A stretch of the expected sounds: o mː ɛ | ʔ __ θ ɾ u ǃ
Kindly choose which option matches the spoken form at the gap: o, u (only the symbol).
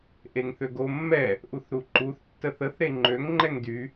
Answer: u